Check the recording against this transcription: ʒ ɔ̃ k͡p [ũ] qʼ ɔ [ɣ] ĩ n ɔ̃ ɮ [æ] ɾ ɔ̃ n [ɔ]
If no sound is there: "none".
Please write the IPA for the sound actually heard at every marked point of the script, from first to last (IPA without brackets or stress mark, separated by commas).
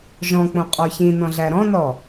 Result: õ, ç, æ, ɔ